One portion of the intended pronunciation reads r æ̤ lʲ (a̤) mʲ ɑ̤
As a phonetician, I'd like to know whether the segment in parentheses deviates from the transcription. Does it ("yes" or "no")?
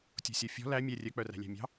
yes